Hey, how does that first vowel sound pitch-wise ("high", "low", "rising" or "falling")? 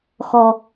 low